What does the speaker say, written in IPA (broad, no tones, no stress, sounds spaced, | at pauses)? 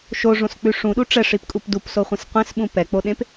ʃ o ʐ õ s k͡p ʉ ʂ ũ ɗ u ʈ͡ʂ ɛ ʂ i p kʼ u p d u p s o χʷ ẽ s qʷ ẽ s ɓ ũ p ɛ k͡p o ɗ ẽ p